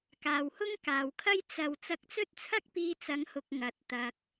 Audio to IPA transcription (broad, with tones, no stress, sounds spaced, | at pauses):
k aː˨ w h ʊ˥ ŋ k aː˨ w kʰ ɐ˥ j t͡s ɐ˨ w t͡s ɐ˧ k̚ t͡s ɵ˥ t̚ t͡sʰ ɐ˥ k̚ p iː˧ t͡s ɐ˨˧ ŋ h ʊ˨ k̚ ŋ ɐ˨ t̚ t̪ ɐ˧ k̚